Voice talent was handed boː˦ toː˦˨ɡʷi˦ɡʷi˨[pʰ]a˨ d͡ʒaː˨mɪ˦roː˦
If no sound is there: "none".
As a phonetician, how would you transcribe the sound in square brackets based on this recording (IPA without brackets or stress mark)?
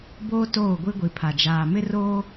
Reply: pʰ